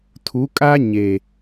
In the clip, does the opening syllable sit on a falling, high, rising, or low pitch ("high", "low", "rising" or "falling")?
rising